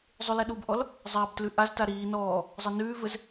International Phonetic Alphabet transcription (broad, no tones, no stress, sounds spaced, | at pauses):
zˤ ʉ l ɛ ɗ u b ʔ ɔ l | zˤ a b t l ʉ ʔ a z t a ɾ iː n ɔː | zˤ ə n ʉː v ɘ z